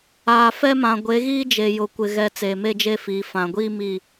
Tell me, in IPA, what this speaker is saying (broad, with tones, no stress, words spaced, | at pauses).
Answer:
aː˨fɛ˦ mã˨ɡʷe˨˦ɣiː˦ d͡ʒe˨jʊ˨kʷɪ˨ɣɛ˨ t͡seː˨me˦d͡ʒe˦fiː˨ fã˨ɡʷiː˦ mi˦˨